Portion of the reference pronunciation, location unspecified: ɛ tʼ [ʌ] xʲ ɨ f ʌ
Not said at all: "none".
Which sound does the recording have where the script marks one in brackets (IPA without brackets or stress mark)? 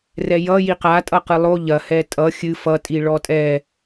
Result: ʌ